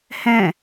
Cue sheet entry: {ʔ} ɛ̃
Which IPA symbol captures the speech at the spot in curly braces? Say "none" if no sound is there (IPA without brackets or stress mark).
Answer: h